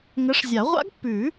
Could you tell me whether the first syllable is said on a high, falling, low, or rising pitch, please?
rising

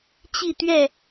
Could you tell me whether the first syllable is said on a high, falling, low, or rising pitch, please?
falling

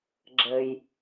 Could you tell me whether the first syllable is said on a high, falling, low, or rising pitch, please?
low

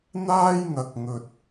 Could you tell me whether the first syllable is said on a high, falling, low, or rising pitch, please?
high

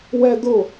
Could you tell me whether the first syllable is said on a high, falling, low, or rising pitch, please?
high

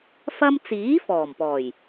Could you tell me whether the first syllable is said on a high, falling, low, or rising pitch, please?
high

